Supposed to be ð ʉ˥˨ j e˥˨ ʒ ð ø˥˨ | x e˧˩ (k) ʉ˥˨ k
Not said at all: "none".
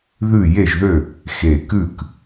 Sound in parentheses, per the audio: k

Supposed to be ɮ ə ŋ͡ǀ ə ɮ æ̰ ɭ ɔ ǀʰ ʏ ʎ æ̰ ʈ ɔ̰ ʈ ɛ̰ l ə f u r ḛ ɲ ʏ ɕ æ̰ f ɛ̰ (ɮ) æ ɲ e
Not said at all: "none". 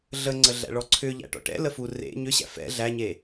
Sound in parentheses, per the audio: ɮ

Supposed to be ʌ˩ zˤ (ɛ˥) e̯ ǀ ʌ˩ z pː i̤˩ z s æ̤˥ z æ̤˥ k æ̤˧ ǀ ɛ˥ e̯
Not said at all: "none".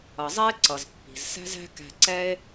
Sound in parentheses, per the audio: ɛ˥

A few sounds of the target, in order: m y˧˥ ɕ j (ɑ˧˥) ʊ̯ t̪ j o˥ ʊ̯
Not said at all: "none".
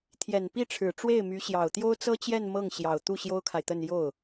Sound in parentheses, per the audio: ɑ˨˩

